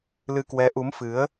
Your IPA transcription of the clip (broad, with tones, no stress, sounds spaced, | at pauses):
l ɨ˧ k w ɛ˨˦ ʔ u˨˦ m f ɨ˨˦ ə̯